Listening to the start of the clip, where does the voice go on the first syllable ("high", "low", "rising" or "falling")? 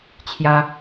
high